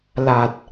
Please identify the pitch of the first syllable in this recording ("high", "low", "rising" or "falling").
low